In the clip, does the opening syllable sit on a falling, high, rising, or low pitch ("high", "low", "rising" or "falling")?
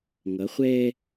rising